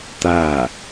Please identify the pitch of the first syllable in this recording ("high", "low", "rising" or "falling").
falling